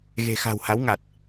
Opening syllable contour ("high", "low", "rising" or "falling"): low